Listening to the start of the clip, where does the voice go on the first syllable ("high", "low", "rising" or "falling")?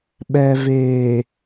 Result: low